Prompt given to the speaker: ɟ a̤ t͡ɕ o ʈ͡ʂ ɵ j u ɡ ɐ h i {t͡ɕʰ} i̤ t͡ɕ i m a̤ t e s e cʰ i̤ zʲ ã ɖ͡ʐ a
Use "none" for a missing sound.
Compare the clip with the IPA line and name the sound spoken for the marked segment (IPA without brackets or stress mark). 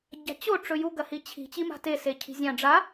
t͡ɕʰ